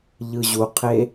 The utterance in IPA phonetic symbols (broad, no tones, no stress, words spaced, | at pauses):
ʎɯʑuqʰe